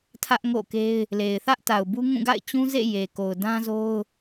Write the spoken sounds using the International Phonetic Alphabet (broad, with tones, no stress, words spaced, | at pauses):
tʰä˦ʔŋo̰˦˨ke˦ɪ̯ | le˨ɪ̯θä˦ʔta˨ʊ̯bu˦ ŋũ˦˨ɡa̰˦˨ɪ̯ t͡ɕũ˦zḛ˦˨ je˨ko˨ʊ̯ dã˦zo˦ʊ̯